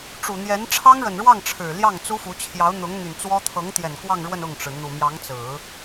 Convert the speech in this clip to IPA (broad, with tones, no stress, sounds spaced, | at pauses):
ʈ͡ʂ u˨˩ n̪ j ɛ˧˥ n ʈ͡ʂʰ ɑ˥ ŋ ɻ ə˨˩ n ɻ w ɑ˥˩ ŋ ʈ͡ʂʰ ɻ̩˨˩ l j ɑ˥˩ ŋ t͡s u˥ f u˧˥ t͡ɕʰ j ɑ˧˥ ʊ̯ n̪ ʊ˧˥ ŋ n̪ y˨˩ n t͡s w ɔ˥ t̪ʰ ɤ˧˥ ŋ t̪ j ɛ˨˩ n k w ɑ˥˧ ŋ ɻ w ə˥˧ n ʊ˥˩ ŋ ʈ͡ʂ ɻ̩˩ n̪ u˨˩ m j ɑ˧˥ ŋ t͡s ɹ̩˨˩˦